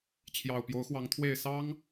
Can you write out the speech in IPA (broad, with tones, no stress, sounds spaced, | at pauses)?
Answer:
t͡ɕʰ j ɑ˨˩ ʊ̯ p j o˨˦ ʊ̯ x w ɑ˨˦ ŋ t̪ʰ w e˥˨ ɪ̯ s ɑ˦ ŋ